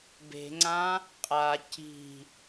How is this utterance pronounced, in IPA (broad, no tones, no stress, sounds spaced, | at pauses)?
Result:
b e̤ ŋ͡ǀ ã | qʼ a c i̤